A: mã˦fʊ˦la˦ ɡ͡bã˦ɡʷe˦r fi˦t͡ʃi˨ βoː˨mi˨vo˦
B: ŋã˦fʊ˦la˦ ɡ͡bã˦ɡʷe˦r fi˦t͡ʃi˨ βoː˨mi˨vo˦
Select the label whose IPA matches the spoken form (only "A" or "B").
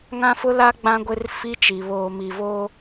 B